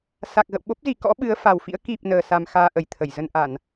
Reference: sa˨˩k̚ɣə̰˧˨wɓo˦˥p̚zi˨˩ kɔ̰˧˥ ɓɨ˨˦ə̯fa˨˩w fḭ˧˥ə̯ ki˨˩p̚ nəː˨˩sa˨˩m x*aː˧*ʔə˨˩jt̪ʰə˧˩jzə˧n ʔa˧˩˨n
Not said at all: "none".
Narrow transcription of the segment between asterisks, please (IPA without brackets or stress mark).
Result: aː˧